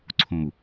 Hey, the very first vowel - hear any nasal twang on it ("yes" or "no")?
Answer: yes